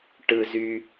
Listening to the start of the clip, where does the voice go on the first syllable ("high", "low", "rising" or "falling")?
high